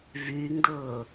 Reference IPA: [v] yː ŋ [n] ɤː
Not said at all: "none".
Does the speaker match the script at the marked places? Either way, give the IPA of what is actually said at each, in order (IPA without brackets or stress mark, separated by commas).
v, d